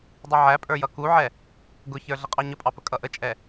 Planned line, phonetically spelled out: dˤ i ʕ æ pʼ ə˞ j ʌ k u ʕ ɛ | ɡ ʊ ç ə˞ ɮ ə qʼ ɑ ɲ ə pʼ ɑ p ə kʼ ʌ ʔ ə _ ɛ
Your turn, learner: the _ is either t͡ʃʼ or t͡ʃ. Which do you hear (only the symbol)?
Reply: t͡ʃʼ